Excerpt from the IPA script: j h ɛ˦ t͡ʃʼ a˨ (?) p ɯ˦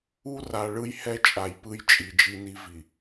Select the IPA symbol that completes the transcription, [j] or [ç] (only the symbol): j